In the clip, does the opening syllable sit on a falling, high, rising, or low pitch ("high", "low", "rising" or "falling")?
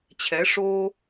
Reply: rising